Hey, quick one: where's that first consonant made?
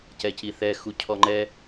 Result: palate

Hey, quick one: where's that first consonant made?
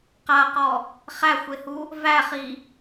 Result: uvula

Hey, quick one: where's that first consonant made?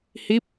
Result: throat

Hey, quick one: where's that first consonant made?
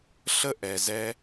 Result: tongue tip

